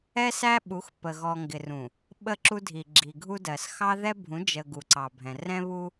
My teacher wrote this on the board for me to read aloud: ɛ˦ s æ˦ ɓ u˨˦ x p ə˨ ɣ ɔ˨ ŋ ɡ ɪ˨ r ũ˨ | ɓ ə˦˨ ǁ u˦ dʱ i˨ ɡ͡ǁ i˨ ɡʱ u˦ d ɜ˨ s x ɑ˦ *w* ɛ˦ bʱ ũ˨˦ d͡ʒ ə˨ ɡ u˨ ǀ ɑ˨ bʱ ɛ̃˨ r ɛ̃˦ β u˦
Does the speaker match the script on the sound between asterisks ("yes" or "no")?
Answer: no